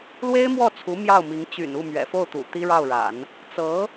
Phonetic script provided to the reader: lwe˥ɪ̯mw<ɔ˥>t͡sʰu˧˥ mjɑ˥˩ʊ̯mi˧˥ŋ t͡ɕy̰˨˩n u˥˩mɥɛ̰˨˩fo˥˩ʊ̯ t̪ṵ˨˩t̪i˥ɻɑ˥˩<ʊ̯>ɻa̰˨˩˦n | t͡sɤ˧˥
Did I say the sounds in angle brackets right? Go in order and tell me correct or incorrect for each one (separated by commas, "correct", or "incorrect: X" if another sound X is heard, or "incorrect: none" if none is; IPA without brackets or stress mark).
incorrect: ɔ˥˩, correct